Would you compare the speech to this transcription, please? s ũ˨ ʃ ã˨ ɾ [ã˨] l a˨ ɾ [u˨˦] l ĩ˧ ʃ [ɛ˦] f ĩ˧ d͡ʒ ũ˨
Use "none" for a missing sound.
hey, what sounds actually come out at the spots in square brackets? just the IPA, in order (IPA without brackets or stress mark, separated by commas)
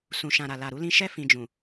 a˨, u˨˦, ɛ˦